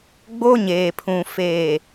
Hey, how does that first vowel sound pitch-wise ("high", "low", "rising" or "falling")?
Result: high